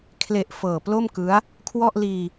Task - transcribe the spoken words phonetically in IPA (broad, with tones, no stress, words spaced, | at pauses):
kʰle˨˩ʔ fɤː˨˩plo˥˩mkɯ˦˥a̯ | kʰwɔ˥˩ʔliː˧